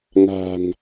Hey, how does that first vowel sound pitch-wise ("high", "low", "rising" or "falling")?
low